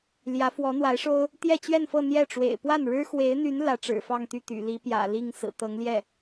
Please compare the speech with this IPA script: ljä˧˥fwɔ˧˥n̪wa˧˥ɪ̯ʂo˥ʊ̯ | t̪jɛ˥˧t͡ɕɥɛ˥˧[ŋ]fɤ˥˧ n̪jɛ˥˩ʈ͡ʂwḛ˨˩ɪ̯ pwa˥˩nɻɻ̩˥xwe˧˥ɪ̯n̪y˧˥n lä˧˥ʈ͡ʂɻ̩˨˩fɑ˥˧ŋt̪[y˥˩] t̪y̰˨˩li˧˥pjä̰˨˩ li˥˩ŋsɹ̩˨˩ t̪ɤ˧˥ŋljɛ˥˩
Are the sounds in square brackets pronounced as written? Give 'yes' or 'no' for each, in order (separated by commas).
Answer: no, yes